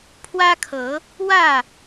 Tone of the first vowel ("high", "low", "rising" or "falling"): high